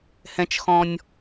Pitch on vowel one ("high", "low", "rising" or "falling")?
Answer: high